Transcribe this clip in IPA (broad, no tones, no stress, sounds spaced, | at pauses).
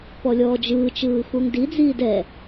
p ɔ lʲ ɔː d͡ʒ ɯː t͡ʃ ɯː x u ŋ d i d͡z iː d ɛ